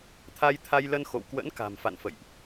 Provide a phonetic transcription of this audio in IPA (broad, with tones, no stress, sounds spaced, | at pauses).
t̪ʰ a˧ j t̪ʰ a˧ j l ə˧ n x o̰˧˨ w k w ə̰˧˥ n k a̤˨˩ m f a̰˧˨ n f ə̰˧˨ j ʔ